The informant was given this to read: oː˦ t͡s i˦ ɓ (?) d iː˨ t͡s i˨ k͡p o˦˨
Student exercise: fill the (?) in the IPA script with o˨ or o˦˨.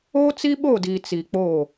o˦˨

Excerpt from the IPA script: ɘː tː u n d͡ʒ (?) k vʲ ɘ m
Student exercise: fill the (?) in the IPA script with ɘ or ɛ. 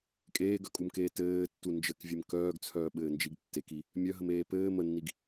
ɘ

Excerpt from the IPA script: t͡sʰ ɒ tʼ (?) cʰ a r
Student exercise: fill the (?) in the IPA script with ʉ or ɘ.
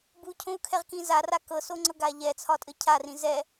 ɘ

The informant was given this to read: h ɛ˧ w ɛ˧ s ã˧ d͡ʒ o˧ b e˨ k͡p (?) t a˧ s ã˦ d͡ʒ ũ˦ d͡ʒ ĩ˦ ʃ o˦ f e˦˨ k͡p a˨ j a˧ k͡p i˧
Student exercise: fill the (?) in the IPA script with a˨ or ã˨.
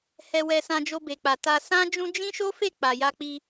a˨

